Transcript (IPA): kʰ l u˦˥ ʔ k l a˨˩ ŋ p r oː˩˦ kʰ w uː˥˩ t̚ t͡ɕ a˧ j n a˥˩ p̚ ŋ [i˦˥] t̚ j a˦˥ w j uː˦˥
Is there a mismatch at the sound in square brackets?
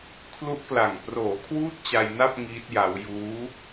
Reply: yes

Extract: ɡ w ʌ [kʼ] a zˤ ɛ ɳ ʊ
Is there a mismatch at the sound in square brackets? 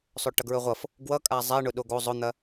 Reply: no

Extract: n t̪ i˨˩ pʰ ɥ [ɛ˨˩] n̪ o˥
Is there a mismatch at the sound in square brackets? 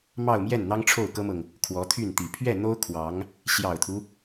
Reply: yes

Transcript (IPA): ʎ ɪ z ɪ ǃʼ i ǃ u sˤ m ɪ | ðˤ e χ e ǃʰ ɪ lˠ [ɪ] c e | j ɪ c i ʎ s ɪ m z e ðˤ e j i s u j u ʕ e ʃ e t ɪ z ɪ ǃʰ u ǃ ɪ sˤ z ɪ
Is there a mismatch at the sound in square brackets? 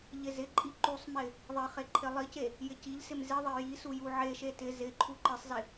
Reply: yes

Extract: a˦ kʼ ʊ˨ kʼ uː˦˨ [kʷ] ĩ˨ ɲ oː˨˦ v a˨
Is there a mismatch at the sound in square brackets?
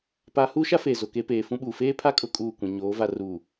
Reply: no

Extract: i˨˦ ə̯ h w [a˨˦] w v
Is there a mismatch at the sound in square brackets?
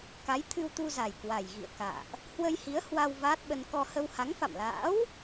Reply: yes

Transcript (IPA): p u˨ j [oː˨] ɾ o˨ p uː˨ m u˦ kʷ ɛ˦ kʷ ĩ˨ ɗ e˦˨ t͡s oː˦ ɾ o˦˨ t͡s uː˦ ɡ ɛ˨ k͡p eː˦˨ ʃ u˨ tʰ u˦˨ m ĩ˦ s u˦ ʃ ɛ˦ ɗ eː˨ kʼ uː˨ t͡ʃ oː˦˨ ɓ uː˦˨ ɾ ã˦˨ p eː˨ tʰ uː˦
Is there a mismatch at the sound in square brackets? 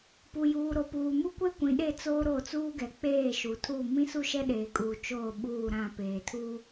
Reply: yes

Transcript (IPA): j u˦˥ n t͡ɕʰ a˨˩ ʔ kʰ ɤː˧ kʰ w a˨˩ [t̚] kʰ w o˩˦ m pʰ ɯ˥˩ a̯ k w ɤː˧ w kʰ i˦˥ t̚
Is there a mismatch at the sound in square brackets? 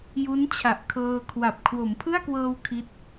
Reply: yes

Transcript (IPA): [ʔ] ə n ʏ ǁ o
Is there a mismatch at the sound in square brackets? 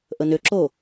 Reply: no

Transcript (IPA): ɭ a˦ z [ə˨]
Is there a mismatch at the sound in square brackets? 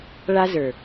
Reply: yes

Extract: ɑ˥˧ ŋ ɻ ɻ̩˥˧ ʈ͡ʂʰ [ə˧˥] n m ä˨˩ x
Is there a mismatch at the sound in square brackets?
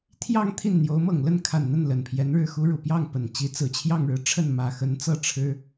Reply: yes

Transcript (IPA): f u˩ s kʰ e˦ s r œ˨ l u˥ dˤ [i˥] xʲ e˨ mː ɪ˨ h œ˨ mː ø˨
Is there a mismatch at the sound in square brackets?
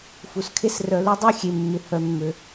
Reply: yes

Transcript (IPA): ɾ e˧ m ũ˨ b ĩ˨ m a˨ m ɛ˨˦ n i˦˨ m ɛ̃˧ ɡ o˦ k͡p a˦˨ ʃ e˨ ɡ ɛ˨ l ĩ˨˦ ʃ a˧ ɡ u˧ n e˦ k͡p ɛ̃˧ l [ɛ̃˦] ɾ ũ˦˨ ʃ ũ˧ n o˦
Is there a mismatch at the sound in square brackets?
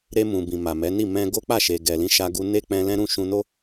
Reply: no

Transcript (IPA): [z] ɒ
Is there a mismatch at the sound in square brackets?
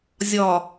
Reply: yes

